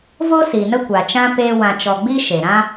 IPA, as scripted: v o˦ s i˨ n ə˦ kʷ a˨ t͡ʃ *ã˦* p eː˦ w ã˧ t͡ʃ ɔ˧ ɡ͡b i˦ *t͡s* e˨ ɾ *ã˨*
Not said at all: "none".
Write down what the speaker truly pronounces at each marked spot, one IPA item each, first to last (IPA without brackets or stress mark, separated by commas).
ã˦, ʃ, ã˦